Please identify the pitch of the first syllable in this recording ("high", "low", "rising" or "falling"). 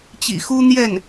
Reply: low